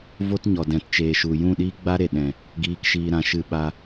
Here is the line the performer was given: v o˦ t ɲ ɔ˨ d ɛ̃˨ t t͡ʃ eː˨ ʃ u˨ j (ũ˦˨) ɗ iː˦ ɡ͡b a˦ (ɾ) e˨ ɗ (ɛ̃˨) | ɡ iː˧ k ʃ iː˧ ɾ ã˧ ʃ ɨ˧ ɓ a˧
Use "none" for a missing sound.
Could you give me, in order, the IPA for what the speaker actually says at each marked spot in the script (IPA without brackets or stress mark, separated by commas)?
ũ˦˨, ɾ, ɛ̃˨